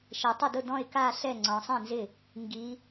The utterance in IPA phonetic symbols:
ʃe˩˧tˤɪ˥˩dʊ˥˩ dɔ̃˥˩ɪ̯ka˥˧ɬɛ˥˩ ŋ͡ǀɔ̃˩˧sˤĩ˥˩nzɪ˥˩ | ŋɡi˩˧

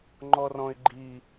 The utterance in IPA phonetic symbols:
ŋ͡ǃɔrɔ̃ɪ̯ɡ͡ǃi

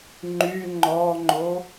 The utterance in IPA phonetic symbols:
ŋ͡ǃy ŋ͡ǃɔŋ͡ǃo

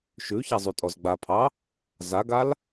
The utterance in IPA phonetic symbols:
ʃʉçazˤytʼɔz ɡ͡bapʰɑ | zaɡal

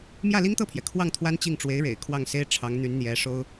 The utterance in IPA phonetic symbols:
mjä˥˩li˥ŋt̪ɤ˥˩pʰjɛ˩ kʰwɑ˥˩ŋ t̪ʰwa˥nt͡ɕi˥˩ŋ ʈ͡ʂwe˧˥ɪ̯ɻḛ˨˩ɪ̯ kʰwɑ˥˩ŋse˥ɪ̯ ʈ͡ʂʰɑ˧˥ŋn̪y˧˥n n̪jɛ˧˥ʂo˥ʊ̯

